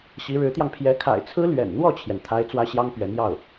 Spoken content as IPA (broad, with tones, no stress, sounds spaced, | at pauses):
ɕ i˧˥ ɻ ɻ̩˧˥ t̪ j ɑ˧ ŋ pʰ j ɛ˧˥ kʰ a̰˨˩ ɪ̯ t͡sʰ ɹ̩˥ l ɥ ɛ̰˨˩ n n̪ w ɔ˥˩ t͡ɕʰ j ɛ˩ n t̪ʰ a˥ ɪ̯ t͡s w ä˥ ɕ j ɑ˥ ŋ p ɥ ɛ˧˥ n j ɑ˥˩ ʊ̯